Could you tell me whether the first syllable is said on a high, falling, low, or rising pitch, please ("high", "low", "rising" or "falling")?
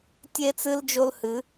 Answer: high